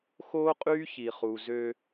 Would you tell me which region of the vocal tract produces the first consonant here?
velum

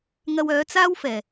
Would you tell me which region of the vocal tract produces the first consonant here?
velum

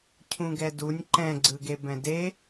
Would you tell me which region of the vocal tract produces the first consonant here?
palate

